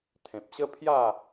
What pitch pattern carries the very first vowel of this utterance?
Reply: low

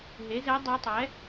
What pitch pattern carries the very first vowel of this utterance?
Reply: rising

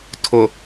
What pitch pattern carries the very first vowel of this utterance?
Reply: low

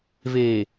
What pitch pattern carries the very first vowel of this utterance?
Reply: low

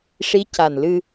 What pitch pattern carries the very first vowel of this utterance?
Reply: rising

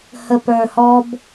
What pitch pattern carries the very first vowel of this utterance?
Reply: low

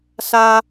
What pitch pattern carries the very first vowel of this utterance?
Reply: high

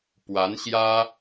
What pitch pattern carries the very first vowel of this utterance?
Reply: rising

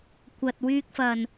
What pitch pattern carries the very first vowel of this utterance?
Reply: low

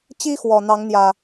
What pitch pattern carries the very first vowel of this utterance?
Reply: high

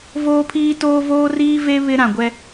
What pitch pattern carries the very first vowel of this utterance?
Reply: high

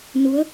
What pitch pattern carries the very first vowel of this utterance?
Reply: rising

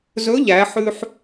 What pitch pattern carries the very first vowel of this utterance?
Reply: rising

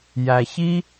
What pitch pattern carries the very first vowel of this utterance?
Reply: low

